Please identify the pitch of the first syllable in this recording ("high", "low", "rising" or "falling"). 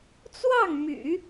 falling